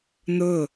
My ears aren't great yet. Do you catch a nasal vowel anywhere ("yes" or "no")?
no